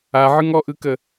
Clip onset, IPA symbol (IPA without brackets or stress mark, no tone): a